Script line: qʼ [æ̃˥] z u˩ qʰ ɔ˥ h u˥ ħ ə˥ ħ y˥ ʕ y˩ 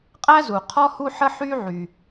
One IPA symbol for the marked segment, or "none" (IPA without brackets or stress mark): æ˥